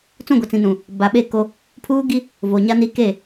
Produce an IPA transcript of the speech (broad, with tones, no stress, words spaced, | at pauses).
t͡sũ˦˨ɡʷɛ˨t͡sĩ˨nũ˨ | ba˨ɓe˦˨ ko˦ | pʰuː˦ɡi˦ | vo˨ɲa˦ni˦ ke˦˨